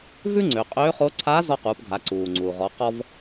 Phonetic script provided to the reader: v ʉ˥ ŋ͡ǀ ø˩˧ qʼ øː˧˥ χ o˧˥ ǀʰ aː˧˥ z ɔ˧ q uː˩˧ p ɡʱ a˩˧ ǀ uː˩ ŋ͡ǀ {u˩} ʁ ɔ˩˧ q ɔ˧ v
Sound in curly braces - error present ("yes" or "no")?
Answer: no